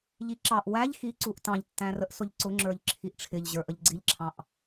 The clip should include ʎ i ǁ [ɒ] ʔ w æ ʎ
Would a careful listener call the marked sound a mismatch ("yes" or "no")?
yes